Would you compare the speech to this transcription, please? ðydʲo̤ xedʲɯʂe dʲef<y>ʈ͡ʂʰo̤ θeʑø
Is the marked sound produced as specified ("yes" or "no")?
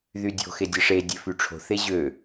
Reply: yes